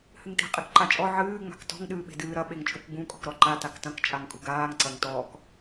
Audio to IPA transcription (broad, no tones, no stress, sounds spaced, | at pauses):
h ɨ ŋ t e̤ qʼ e k ǃ a t͡ʃʼ ɔ ʕ ɨː ŋ͡m a̤ k t ɔ̤ ŋ ɗ ɨː ɓ e̤ d ɨː ɾ ɐ ɓ e ŋ t͡ʃʼ u k ɡ͡b ũ kʼ ɔ̤ k ɾ ɔ ǃ a t a k t ɐ̃ k t͡ʃʼ a ŋ kʼ ṳ ɡ aː ŋ ǀ ɐ ŋ t ɔː k